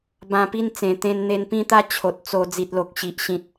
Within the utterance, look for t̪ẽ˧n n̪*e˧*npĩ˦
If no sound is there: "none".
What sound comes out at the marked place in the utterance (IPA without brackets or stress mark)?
e˧